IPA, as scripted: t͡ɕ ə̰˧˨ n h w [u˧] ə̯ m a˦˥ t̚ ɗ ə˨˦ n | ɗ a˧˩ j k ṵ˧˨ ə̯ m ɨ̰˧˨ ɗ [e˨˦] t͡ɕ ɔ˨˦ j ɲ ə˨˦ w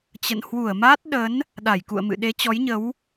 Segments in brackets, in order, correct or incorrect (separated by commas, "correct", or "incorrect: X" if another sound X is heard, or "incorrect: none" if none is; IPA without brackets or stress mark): incorrect: u˧˩, correct